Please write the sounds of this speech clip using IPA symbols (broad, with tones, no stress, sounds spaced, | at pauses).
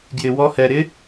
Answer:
ɡ j ɪ˧ w ɔ˦˥ h ɛ˧ ɾ ɪ˦˥